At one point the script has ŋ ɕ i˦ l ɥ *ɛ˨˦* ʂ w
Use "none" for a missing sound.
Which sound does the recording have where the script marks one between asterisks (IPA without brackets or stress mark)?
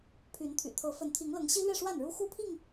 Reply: ɛ˥˨